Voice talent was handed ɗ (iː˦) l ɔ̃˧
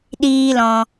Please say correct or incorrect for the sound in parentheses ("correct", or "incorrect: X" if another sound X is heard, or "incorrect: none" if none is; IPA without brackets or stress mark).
correct